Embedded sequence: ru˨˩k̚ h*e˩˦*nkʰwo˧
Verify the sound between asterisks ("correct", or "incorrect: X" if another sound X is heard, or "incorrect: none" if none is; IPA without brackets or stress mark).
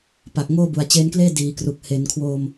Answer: correct